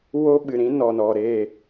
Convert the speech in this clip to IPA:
wo˦ɓɨ˨ɾĩ˦ nɔ˨nɔ˨ɾe˦˨

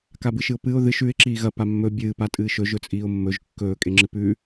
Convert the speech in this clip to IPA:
kabɨʃɨʊ̯pɨʊ̯ ðɨʃ ʉɪ̯ ǁiːɣɐ pamːɵ bʲɨː patʼɨːʃɵ ʒɵt͡sʼiːʊ̯mːɵʒ kːɵː kʼeŋ͡ǁɨpʉ

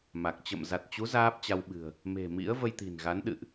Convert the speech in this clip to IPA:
ma˨˩k̚ t͡ɕə̰˧˨m za˨˩t̚t͡ɕu˨˦ zaː˦˥p̚t͡ɕa˧wɓɨ̤˨˩ə̯ | me̤˨˩mḭ˧˥ə̯ və˧jt̪i̤˨˩nɣa˨˦nɗɨ̰˧˨ʔ

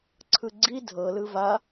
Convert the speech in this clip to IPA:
ǀʰɯɡ͡ǀi dʱɤlɯ va

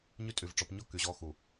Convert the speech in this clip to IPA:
ɲy˦tʼy˨vʈ͡ʂɔ˨˦p ɲɔ˦ ky˨ʑɔ˦ xu˨

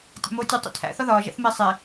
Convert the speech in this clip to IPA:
tʲæ̰moːtʲu tˤḭtʰæ̰ θɒðɒː ʒæ̰θme sˤe

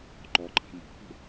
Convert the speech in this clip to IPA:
ǃɔǃʼa̤ mɔ̤hṳ

